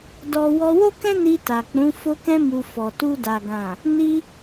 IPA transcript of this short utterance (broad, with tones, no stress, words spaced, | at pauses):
dɔ˧ wɔ˧wo˦kɛ̃˦ ni˧ta˨k͡pũ˨˦ fo˧kɛ̃˧mu˨ fɔ˨tu˧da˨ ɡã˨ | ni˧